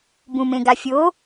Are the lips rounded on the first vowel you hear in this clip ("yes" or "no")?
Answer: yes